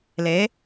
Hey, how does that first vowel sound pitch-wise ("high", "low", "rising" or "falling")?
rising